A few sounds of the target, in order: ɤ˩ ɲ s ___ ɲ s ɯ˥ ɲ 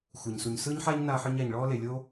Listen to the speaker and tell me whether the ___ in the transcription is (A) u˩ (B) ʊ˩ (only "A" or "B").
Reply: A